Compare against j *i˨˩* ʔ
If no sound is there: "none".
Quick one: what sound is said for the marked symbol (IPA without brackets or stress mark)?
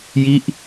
i˦˥